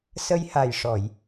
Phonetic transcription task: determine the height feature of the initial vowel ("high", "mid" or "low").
mid